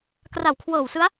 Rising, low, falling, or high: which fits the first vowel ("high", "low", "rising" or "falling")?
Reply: low